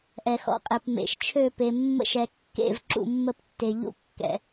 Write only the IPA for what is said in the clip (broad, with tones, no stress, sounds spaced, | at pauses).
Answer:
ʔ ɛ˩ x ɔ̰˩ qʼ ɛ˩ p m ḛ˩ ʃ t͡ʃʰ ø˧˩ p e˩ mː ə̰˧˩ ʃ ɛ˩ kː ḛ˧˩ v ǁ ṵ˧˩ mː ə˧˩ p tː e˩ ʎ ṵ˧˩ kː ɛ̰˩